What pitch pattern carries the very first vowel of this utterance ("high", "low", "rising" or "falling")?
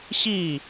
falling